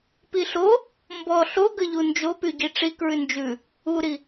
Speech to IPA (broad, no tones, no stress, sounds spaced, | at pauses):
p i ɬ o | m b ɔ ɬ o ɡ ə ʎ u n d͡ʒ o p y ɟ i ʈ͡ʂ i k ɹ ʉ n d͡ʒ ʉ | u ɾ i